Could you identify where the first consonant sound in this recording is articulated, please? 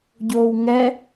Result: palatal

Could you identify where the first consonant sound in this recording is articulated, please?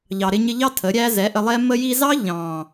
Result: palatal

